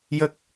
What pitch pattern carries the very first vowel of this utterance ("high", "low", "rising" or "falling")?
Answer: low